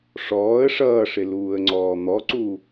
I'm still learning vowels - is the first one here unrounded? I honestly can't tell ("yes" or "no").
no